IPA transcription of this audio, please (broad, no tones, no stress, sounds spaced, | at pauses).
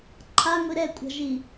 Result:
ǃʰ a ŋʷ i ɾ ɛ kʷʼ a̤ ʒ i